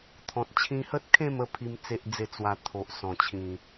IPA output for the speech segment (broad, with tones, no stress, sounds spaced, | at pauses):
t̪ʰ ɔ̃˨ t̚ t͡ɕʰ ĩ˧ h ə˦ t̚ kʰ ẽ˥˧ m ə˧ pʰ i˦ m t͡s e˦ ʔ d͡z e˥˧ t͡s w a˧ t̪ʰ o˨ ʔ s ɔ̃˨˩ t͡ɕʰ ĩ˨˩